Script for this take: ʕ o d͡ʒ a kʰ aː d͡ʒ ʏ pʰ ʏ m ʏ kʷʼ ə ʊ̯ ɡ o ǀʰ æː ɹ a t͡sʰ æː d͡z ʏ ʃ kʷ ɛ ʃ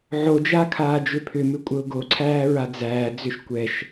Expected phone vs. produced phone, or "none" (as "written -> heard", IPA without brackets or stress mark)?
t͡sʰ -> d͡z